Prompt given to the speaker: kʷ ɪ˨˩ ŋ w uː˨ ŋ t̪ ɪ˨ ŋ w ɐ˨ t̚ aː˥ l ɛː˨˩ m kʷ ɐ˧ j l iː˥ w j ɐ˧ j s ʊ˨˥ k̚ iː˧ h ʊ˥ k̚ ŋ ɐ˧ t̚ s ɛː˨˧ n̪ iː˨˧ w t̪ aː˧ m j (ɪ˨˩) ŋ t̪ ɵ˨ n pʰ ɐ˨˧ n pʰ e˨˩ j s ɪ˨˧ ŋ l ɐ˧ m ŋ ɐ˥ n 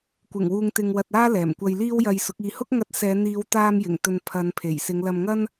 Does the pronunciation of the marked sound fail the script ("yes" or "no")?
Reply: no